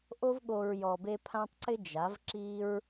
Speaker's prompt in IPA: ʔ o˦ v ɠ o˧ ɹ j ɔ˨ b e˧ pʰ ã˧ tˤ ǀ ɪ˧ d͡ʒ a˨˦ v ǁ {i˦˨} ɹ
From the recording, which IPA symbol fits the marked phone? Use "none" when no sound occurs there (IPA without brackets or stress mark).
i˦